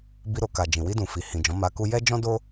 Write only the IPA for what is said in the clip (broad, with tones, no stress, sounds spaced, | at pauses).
b i˧ ɾ o˨ k a˨ d͡ʒ ĩ˨ w i˧ d ũ˨ f i˨ h ĩ˨ d͡ʒ ɔ̃˨˦ m a˧ k u˦ j ɛ˦ d͡ʒ ɔ̃˦ d o˦